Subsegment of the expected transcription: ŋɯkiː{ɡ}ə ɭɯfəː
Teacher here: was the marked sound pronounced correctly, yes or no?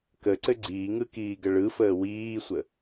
yes